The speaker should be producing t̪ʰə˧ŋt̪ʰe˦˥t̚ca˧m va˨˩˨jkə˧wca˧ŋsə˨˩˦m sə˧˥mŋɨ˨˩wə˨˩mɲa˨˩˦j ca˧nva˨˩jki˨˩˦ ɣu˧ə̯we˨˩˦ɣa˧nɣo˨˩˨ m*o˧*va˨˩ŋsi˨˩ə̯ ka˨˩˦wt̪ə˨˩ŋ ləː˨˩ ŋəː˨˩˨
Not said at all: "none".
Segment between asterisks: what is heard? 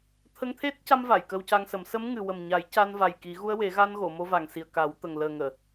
o˧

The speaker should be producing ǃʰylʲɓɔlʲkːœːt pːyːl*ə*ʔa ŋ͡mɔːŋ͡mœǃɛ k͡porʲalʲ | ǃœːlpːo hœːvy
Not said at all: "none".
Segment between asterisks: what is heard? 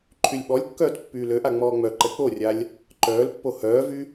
ø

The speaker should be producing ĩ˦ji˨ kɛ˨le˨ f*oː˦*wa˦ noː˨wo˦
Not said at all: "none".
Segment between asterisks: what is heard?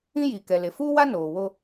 uː˦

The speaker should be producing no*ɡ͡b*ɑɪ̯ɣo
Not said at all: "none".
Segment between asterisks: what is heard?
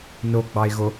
ɡ͡b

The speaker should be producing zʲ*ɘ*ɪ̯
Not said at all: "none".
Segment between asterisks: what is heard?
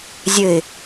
ɘ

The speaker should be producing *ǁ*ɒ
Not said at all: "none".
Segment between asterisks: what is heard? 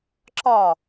ǁ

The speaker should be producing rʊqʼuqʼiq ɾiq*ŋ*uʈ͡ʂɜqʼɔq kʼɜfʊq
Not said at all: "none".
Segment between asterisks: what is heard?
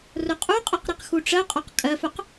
x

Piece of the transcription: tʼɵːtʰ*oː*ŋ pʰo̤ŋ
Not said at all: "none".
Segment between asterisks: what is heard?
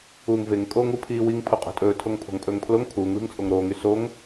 o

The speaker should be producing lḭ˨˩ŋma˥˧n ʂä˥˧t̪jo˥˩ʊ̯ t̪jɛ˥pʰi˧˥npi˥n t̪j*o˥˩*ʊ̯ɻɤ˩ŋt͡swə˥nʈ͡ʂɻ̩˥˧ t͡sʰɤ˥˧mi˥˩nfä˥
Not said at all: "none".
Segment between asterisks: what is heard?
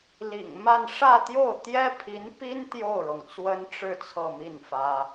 o˥˩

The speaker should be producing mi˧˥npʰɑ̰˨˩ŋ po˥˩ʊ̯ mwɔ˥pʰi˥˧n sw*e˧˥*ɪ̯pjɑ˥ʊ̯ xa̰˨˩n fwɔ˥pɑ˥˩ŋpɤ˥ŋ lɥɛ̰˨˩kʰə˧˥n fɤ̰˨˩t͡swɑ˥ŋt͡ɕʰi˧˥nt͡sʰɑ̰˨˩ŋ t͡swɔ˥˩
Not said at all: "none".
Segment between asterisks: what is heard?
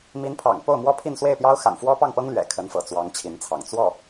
e˥˩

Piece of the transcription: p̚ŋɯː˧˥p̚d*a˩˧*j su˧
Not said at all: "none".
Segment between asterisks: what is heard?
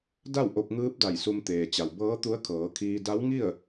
a˧˩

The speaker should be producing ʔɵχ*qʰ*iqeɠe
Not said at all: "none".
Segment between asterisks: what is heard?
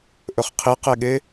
qʰ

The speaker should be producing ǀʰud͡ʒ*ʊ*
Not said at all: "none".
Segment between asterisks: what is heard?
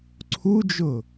ʊ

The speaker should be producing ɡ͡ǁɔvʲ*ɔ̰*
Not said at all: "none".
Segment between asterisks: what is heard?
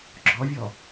ɔ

